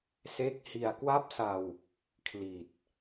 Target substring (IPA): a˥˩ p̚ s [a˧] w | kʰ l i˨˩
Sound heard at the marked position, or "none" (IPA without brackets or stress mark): a˧